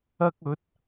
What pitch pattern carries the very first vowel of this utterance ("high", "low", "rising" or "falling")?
high